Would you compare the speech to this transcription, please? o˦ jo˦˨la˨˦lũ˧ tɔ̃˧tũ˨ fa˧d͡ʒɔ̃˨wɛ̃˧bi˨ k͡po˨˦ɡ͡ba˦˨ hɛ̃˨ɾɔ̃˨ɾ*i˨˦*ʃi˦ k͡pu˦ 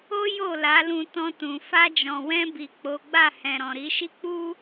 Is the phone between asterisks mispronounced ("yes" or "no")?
no